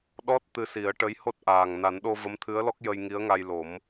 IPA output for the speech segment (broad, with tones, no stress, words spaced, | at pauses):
ɗɔ˦˥t̚ t̪ɨ˧si˨˩˦ə̯ʈə˧˥j ho˦˥t̚ʔaː˨˩ŋ na˨˩˦nɗo˧ və˧˥mt̪ʰɨ˧˥ə̯lɔ˦˥k̚ jə˧jŋi˧˥ə̯ŋa˧jlo˨˩˦m